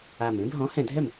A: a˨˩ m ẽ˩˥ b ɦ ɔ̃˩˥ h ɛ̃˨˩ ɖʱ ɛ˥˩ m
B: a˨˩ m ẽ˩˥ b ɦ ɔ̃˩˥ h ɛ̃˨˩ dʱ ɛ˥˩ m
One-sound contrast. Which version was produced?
B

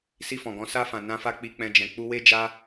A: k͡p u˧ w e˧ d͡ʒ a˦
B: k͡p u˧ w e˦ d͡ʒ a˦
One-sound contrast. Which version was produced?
B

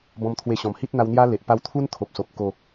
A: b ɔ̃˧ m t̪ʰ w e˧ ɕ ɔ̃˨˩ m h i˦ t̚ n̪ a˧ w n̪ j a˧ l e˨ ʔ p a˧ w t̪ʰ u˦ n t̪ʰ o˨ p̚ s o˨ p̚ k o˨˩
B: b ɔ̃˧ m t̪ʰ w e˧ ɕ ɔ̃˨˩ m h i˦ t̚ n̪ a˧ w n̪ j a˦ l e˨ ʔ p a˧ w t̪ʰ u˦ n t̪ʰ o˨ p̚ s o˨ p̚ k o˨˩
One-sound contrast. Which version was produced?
B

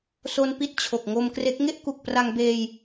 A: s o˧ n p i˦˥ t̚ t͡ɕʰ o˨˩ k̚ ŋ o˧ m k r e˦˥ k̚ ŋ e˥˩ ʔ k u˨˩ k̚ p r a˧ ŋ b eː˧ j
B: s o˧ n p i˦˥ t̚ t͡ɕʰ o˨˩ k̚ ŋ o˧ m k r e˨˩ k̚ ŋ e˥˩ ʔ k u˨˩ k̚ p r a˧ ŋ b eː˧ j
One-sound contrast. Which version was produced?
A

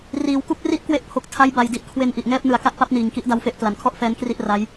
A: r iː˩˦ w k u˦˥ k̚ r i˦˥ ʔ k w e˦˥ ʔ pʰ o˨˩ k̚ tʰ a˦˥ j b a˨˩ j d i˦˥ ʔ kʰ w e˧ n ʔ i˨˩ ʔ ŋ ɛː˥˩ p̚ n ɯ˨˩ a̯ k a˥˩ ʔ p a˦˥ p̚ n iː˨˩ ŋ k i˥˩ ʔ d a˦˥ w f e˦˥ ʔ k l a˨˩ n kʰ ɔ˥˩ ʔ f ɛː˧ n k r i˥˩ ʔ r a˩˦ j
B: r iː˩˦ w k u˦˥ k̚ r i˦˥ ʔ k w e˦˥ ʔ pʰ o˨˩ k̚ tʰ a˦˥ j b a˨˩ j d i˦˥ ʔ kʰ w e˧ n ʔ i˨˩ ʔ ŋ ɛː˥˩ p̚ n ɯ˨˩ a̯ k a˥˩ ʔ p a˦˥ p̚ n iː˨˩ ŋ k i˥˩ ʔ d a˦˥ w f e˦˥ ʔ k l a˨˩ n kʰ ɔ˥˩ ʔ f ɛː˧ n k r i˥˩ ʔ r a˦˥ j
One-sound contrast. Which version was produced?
B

